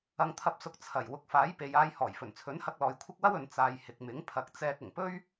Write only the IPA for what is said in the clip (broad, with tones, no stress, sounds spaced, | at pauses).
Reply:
ɐ˨ ŋ t̪ʰ ɐ˨˥ p̚ s ʊ˨˥ k̚ t͡sʰ ɐ˨˩ j w ʊ˨ k̚ f aː˨˥ j p e˨ j aː˧ j h ɔː˨˩ j f ɵ˨˩ n t͡sʰ ɵ˨˥ n h ɐ˧ k̚ l ɔː˨ j kʷʰ ɪ˥ k̚ w ɐ˥ w ɵ˨ n t͡s aː˨ j h ɪ˨ k̚ m ɪ˨˥ ŋ pʰ ɐ˨˥ k̚ t͡s ɛː˧ k̚ ʊ˨˩ ŋ p ɵ˥ ɥ